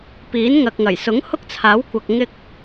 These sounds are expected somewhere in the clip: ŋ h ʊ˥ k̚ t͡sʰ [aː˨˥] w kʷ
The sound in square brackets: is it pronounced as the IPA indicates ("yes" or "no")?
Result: yes